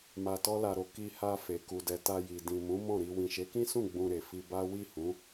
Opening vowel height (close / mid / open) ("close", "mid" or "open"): open